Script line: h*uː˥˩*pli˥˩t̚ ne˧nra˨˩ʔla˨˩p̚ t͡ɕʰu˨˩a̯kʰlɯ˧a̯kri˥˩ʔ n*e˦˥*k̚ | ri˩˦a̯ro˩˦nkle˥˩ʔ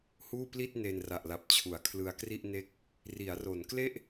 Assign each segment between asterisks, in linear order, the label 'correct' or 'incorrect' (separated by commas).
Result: correct, correct